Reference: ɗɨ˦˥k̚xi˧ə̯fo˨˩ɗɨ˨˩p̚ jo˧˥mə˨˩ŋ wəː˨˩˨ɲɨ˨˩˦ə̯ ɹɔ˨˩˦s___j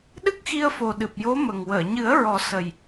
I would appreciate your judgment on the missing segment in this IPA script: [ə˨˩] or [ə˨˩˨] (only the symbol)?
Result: ə˨˩